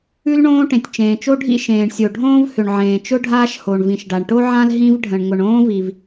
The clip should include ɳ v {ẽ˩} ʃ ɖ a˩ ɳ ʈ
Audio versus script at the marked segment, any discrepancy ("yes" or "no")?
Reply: yes